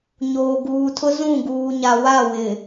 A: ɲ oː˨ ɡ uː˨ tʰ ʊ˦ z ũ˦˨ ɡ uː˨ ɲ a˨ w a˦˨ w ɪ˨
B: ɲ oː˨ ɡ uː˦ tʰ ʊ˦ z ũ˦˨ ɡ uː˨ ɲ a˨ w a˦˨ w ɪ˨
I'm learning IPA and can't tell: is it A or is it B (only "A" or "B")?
A